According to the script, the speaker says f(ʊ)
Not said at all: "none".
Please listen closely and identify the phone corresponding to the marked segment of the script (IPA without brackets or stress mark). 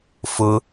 ʊ